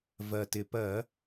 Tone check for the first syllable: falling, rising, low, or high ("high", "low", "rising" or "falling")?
low